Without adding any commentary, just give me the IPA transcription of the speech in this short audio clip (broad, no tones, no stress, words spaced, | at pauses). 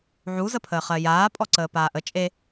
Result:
ʕu zəpʰəːχɜjaː pʼɔǀəːpaːʔə t͡ʃʼe